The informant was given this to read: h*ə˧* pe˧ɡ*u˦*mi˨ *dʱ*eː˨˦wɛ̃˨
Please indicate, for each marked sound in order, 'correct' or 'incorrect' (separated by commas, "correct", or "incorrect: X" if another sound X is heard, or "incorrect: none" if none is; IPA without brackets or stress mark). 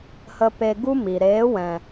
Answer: correct, correct, incorrect: ɾ